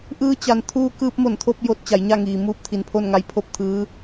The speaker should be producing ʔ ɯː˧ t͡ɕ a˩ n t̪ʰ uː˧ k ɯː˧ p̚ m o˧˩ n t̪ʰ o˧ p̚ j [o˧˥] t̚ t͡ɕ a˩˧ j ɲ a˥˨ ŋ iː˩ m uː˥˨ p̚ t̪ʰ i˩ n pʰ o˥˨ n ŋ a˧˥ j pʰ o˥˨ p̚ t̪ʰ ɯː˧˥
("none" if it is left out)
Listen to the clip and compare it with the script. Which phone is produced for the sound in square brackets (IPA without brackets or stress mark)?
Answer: o˧˥